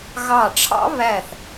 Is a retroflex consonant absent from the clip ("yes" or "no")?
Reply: no